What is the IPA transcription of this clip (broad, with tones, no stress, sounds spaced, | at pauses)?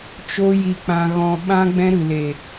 t͡ʃ o˦ j i˧ k͡p ã˧ ɣ ɔ̃˧ ɓ ã˦ ɡ͡b ɛ̃˦ ɾ ɨ˨ l e˨